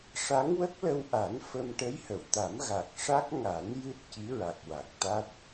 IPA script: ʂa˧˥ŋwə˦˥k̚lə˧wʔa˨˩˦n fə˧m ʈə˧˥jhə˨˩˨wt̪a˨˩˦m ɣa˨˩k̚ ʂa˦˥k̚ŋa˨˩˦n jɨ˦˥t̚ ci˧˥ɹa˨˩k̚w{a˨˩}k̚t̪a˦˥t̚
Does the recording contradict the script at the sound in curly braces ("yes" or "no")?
no